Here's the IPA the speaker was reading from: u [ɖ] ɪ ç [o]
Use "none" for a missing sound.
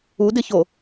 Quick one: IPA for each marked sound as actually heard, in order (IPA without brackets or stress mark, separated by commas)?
d, o